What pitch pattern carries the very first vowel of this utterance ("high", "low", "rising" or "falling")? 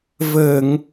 low